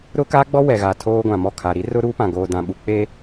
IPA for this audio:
ɾ ʊ˦ k a˦ ɡ͡b ɔ˦ w ɛ˨ ɣ a˨ tʰ oː˦ ɡʷ ã˨ m ɔ˦˨ kʰ a˨ ɾ i˦ r ʊ˦ ɾ uː˦ p ã˨ ɡ oː˨ d ã˨ ɓ u˨ k͡p e˦

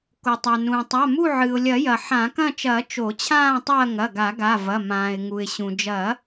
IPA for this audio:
k o˩ tˤ a˩ n ũː˩ tˤ a˩˧˩ m u˦˨ ʕ ɨ˩ ʊ̯ lʲ ɐ˨˩˦ j ɐ˩ ħ ã˨˩˦ k ɐ̃˦˨ t͡ʃ ɐː˨˩˦ t͡ʃ o˨˩˦ t͡ɕʰ ãː˦˨ tˤ ɐː˦˨ ŋ ɐ˩˧˩ ɡ a˨˩˦ ɡ a˩˧˩ v ɐ˩˧˩ m ãː˩ ɪ̯ ŋ u˩ ɪ̯ ɕ ũ˩ d͡ʒ ɐː˨˩˦

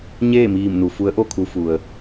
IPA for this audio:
ɲ eː˥˨ m iː˧˩ m n u˩ f u˧˥ ə̯ ʔ o˥˨ kʰ u˧ f u˩ ə̯

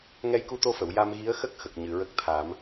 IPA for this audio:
ŋ ɛ˧ j k u˧ t̪ o˧ f ə˨˩˨ w j a˧ m ɣ i˧˥ ə̯ x ə˦˥ k̚ x ə˨˩ k̚ ɲ ɨ˨˩ ɹ ə˦˥ k̚ t̪ʰ a˨˩˦ m

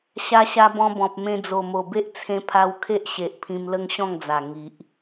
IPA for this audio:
ɕ a˧ ɕ a˧ b ɔ̃˧ b ɔ̃˨ p̚ m ẽ˧ d͡z o˨˩ m o˨˩ b e˦ ʔ t͡sʰ ẽ˧ pʰ a˧ w kʰ e˦ ʔ ɕ e˨ ʔ pʰ ĩ˧ m l ə˦ ŋ ɕ ɔ̃˥˧ ŋ d͡z a˨˩ ŋ i˨ ʔ

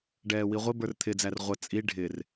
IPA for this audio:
ɖ ɛː w i ʁʷ ɪ b ə˞ r t̪ʰ ɪ d͡z æ r ʁʷ ə t͡sʼ i ɖʱ ɪ r

